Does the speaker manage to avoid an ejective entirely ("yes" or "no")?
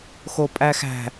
no